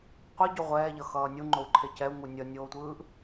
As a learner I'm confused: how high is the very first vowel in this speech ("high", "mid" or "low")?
high